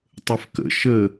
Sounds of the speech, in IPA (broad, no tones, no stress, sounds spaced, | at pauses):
tˤ ə f k ə̰ ʃ ə